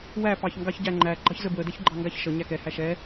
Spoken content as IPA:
w æ p ɑ ç ŋ ɡ ɑ ç ɟ æ ŋ͡ǃ æ ɡ͡ǃ ɑ ç z ə b w ə d ɛ ç ɡ͡ǃ ɑ ŋ ɡ a ç ʃ ə ɲ æ k ɛ h æ ʃ ɛ

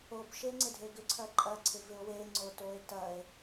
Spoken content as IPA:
o b ʃ e ŋ͡ǀ ɪ dʱ e ɡ ʏ ǀʰ ɐ ǃʼ ɐ ǀʰ ɪ v ɪ o̯ w e ŋ͡ǀ o t o e̯ t ɐ e̯

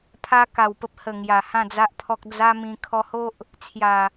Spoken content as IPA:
pʰ a˧ k a˨˩ w p ə˦ p̚ h ə˨˩ ŋ j a˨˩ h ã˥˧ d͡z a˦ ʔ pʰ ɔ˦ k̚ d͡z a˦ m ĩ˧ kʰ ɔ˧ h o˦ ʔ | t͡sʰ j a˨˩

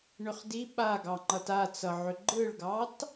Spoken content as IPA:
ɳ ʏ χ d i ɓ a ɡ ɑ ŋ͡ǃ ʌ t a t͡s ʌ ʕ ʏ ɡ͡ǃ ɯ ɭ ɡ ɑ t

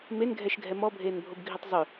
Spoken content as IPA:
m e n ɡʱ ɛ ʃ ɡʱ ɛ m ɔ bʱ eː n bʱ o b ɡʱ i tˤ zˤ ʏ

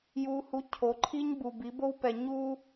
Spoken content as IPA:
j u˨ h u˨˦ cʰ o˨˦ ǃʰ i˦ ɲ b u˨ b i˨˦ b o˦ w p ɛ˨ ɲ u˦

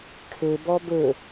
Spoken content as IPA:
kʰ ɘ b ɔ b ɵ

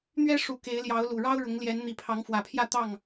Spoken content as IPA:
n̪ ɥ ɛ˦ ʂ u˨˦ k e˨˦ ɪ̯ l j ɑ˨˦ ʊ̯ l u˨˩ ɻ ɑ˦ ʊ̯ ɻ ʊ˨˦ ŋ l j ɛ˨˦ n n̪ i˨˩ pʰ ɑ˨˦ ŋ f w ä˨˩ pʰ j ä˥˨ t̪ ɑ˥˨ ŋ

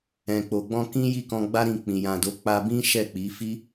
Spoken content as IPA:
ɛ̃˨ k͡p o˨ ɡ͡b ɔ̃˧ k ĩ˦ j i˦˨ k ɔ̃˧ ɡ͡b a˦ ɾ ĩ˧ k͡p ĩ˨ j ã˨ d o˨˦ k͡p a˧ b ĩ˦ ʃ ɛ˦˨ k͡p i˨˦ f i˦

